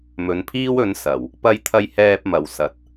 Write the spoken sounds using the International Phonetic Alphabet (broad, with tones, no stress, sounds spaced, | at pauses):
m ɵ˨˧ n pʰ iː˥ w ɵ˨˧ n s ɐ˨˩ w | p ɐ˧ j t̪ʰ ɐ˧ j h ɛː˧ p̚ m ɐ˨ w s ɐ˨˥ t̚